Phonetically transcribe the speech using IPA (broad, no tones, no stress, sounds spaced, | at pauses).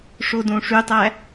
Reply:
ʂ o d õ ʂ y tˤ æ